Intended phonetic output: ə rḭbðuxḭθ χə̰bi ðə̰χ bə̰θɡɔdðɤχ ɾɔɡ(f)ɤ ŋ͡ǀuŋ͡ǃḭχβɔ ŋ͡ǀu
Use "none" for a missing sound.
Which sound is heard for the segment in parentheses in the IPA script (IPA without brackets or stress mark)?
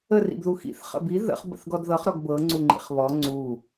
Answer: b